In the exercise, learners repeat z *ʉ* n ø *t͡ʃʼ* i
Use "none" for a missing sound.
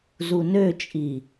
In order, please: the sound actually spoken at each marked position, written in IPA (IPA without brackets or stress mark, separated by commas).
u, t͡ʃʼ